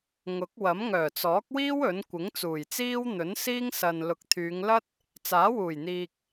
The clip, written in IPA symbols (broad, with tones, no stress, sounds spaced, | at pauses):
ŋ ʊ˨˥ k̚ w ɐ˨˥ m ŋ œː˨˩ t͡s ɔː˨˥ k̚ w iː˥ w ɵ˨˥ n kʷ ɪ˨˥ ŋ t͡s uː˨˩ j t͡s iː˥ w n̪ ɵ˨˥ n s iː˥ ŋ s ɐ˨ n l ʊ˨ k̚ t̪ʰ yː˨˧ ŋ l ɐ˥ t̚ | t͡s aː˨˥ w uː˨˩ j n̪ iː˨ k̚